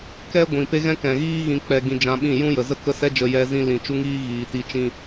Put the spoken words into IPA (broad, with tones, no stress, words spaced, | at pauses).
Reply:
kɛ˦ ɡʷĩ˨pe˦ɣɛ̃˦ kɛ̃˨ɣiː˦ ɣĩ˧k͡pɛ˧ ɡĩ˧d͡ʒã˧ɓĩ˦˨ jũ˦jə˨ zə˦kə˦sɛ˦d͡ʒə˧ jɛ˧zĩ˧ lĩ˨ t͡ʃu˦ŋiː˦ɣiː˨ ti˧t͡ʃĩ˦